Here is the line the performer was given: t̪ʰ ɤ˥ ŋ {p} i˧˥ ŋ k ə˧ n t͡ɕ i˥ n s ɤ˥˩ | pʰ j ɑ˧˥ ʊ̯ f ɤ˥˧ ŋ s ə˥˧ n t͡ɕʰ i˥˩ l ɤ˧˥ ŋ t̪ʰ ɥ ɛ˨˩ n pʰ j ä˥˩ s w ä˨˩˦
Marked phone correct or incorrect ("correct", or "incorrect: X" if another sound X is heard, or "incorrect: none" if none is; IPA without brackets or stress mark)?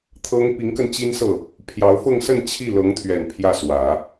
correct